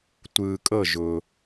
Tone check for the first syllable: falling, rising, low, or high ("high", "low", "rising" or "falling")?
low